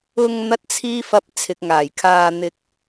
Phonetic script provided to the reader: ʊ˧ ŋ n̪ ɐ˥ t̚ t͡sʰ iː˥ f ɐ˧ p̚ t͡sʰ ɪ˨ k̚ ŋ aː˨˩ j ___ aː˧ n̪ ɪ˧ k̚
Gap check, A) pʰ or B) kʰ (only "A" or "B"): B